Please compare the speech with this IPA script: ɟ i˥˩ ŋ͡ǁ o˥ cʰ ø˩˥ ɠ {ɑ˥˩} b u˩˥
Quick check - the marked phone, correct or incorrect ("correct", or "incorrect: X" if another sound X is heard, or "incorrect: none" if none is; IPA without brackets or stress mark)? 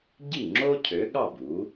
correct